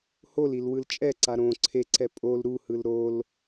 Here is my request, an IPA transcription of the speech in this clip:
h o l i l w ɯ l t͡ʃʼ ɛ ǀ a ɾ õ ǀʰ e ǀ ɛ pʼ o l ɾ u h ɯ l ɾ o l

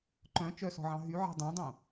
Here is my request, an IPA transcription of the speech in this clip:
ǃ œ̃ t͡ʃ œ s ɔ̤ ʕ ɑ̃ ɦ y ʕ ɛ̤ dˤ œ̃ dˤ õ

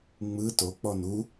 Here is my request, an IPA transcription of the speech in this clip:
ŋ͡m ɯ t o k͡p ɔ n u

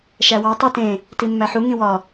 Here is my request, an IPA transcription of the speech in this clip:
ʃ æ w ɒ tˤ i t ẽ | t i mː æ ħ u ŋ ĩ w ɒ

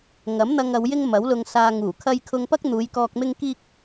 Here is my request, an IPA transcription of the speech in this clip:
ŋ ɐ˨˥ m n̪ ɐ˧ ŋ ɐ˨˧ w j ɪ˥ ŋ m ɐ˨˥ w l ʊ˧ ŋ s aː˧ ŋ uː˨˩ kʰ ɐ˧ j kʰ ʊ˧ ŋ p ɐ˥ k̚ n̪ uː˨˧ j k ɔː˧ k̚ m ɪ˥ ŋ k iː˥ k̚

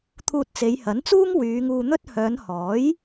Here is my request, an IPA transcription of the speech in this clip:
t̪ʰ uː˧ t̚ t͡s e˨˧ j h ɐ˨˥ n t͡s uː˥ ŋ w yː˨˧ ŋ uː˧ n̪ ɵ˥ t̚ h œː˨˧ n h ɔː˨˥ j

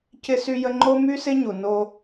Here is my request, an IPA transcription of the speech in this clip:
c ɪ˥ s y˥ j ə˥ ŋ͡ǃ o˥ m y˥ s ɪ˥ ɲ u˩ n o˥

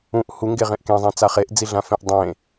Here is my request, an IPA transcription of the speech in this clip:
ũ ʔ h u ŋ ɡ e ʁ ẽ ʔ k ẽ zˤ ẽ t͡s a χ e ʔ d͡z i ɮ ã f ẽ ʔ dˤ ẽ

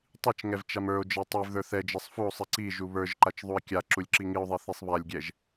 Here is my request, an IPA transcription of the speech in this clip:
tˤ i t͡ʃ ŋ ɛ v t͡ʃ a m ə˞ o̯ d͡ʒ ɛ tˤ i v ð ə˞ θ ɛ d͡ʒ ɛ sˤ f u o̯ sˤ i ǀ i ʒ u β ə˞ ʒ ǃ a t͡ʃ ðˤ u e̯ kʲ a ǁ u lʲ ǁ i ŋ i o̯ ðˤ i θ i sˤ β a lʲ ɡʲ ɛ ʒ

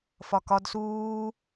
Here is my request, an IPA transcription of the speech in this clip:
f ɒ k ɒ d s uː

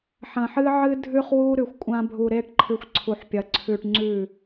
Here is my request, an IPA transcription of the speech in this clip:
ħ ɐ̃˨ ħ ɨ˦ ʕ ɨ˦ dʱ ʉ˦ χ w u˦ ɾ ʉ˨ xʷ kʷʼ ã˦ bʱ u˨ ɾ e˦ ʈ ǃʰ ɨ˨ xʷ ǀʰ u˨ ħ pʲ ɐ˨ ǀʰ ʉ˨ ʈ ŋ͡ǀ ʉ˦˨

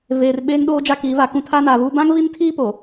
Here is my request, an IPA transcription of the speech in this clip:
v eː˨ r ɓ eː˦ ŋ ɗ oː˦ d͡ʒ a˦ k iː˨˦ v a˨ k ũ˦ tʰ aː˦ n aː˨ v uː˦ b ã˦ ŋ v i˦ n tʰ iː˦ p o˨

